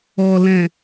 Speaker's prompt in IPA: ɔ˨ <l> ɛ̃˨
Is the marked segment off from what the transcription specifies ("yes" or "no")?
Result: no